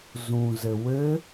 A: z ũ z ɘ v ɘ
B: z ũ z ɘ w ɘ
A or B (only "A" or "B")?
B